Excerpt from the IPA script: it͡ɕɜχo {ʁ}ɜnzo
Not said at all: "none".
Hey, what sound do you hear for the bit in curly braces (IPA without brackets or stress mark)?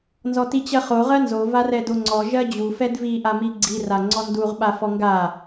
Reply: ʁ